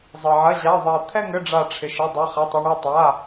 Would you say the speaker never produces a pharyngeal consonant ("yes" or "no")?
no